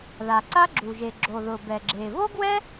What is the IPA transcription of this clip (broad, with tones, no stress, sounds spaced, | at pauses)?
ð a˩ ǀ a˥ ɡ͡ǁ u˩ ʒ e˩ ɡ͡ǁ o˩ ð ʊ˩ b ɛ˩ ɡ͡ǁ e˩ v o˥ ɡ w ɛ˥